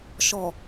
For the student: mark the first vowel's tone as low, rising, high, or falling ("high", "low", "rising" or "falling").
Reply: low